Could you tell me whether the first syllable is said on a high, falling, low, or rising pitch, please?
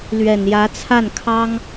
low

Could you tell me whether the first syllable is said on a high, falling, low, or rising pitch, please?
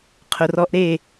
low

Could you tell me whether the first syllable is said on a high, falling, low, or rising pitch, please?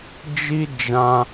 high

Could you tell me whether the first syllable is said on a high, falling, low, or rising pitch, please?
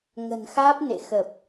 low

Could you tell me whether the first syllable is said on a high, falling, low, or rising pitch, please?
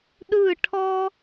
falling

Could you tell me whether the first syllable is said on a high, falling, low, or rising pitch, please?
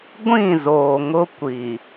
falling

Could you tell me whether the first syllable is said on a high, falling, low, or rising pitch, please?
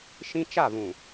high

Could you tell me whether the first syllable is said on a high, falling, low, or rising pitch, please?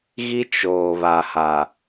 high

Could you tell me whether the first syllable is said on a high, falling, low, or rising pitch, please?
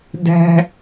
high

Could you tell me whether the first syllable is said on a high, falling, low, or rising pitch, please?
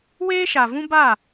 high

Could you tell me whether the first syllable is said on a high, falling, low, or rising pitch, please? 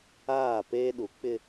falling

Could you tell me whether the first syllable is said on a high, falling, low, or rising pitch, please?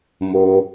low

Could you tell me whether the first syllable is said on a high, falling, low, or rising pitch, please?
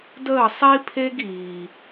falling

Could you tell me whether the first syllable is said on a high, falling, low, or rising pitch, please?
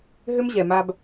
high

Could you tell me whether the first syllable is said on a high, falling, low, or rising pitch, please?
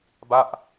falling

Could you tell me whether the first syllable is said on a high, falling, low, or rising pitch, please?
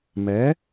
rising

